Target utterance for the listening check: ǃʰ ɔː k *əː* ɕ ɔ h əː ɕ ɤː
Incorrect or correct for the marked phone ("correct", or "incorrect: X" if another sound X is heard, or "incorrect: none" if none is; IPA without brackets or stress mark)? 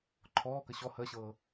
incorrect: ə